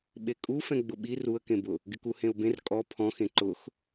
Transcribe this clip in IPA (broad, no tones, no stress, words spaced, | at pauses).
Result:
ɓekʼufɛ̃ ɡ͡bʊɓi ruə̯kẽbʊ | ɡɪkuhẽʊ̯bẽr kʼɔ pʰɔ̃xẽ ǃʊx